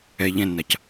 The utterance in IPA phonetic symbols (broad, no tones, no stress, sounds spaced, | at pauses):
ɛ ʎ ɛ̃ nː a c